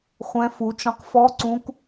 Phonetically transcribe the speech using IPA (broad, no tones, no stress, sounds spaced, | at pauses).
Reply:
χʷ ɛ̃ f u t͡ʃ ɔ̃ q f ɔ ǀ ũ k